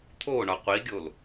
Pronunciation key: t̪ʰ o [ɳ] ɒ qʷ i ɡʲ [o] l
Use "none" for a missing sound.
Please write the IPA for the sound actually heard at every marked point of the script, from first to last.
ɳ, o

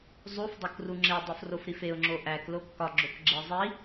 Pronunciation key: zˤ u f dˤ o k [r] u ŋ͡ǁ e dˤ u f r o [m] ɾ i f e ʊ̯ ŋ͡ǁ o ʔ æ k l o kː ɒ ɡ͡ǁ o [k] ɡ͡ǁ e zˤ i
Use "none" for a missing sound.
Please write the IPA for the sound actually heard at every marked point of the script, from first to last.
r, f, k

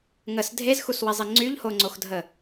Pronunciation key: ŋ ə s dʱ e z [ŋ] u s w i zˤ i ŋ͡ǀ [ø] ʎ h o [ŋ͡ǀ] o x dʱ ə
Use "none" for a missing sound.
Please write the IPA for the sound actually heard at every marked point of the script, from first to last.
x, y, ŋ͡ǀ

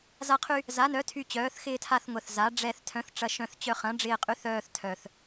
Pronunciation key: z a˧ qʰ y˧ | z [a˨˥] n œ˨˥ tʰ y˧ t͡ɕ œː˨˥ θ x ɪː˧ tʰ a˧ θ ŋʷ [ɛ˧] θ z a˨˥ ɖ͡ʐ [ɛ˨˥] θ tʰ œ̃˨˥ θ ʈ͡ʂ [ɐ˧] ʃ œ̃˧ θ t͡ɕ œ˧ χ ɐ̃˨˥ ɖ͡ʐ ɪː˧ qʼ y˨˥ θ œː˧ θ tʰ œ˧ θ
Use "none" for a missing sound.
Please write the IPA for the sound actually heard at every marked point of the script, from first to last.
a˨˥, ɛ˧, ɛ˧, ɐ˧

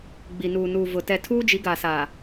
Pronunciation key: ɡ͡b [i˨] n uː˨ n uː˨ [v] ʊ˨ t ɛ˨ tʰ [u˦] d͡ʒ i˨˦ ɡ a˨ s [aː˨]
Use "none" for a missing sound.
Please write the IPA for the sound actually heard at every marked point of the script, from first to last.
i˨, v, uː˦, aː˨

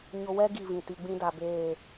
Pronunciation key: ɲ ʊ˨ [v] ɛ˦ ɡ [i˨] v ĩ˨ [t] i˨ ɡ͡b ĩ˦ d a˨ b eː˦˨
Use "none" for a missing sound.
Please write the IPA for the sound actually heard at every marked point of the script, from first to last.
w, i˦˨, t

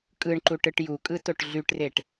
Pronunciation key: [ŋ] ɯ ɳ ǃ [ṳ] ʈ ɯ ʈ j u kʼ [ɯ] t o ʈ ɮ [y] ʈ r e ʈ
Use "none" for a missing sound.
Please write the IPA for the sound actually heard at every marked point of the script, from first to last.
kʼ, u, ɯ, y

